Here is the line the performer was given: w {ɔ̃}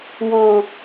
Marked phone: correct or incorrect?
correct